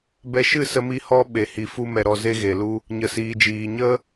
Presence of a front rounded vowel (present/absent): absent